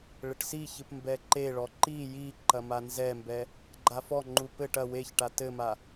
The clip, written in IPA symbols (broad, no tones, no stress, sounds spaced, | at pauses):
ɭ ɘ ʈ s i ç ɨ p m b ɛ ǃ e ɭ ɔ ǃ i j i ǃ ɐ m a n z ɛ m b ɛ | ɡ͡ǃ a f ɔ ŋ͡ǃ u p ɘ ʈ ɐ w e ç ʈ a t ɘ m a